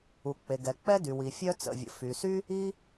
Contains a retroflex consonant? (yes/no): no